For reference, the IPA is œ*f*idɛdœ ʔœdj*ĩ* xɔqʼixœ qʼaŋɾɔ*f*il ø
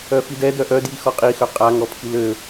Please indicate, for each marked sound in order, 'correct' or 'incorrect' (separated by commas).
correct, incorrect, incorrect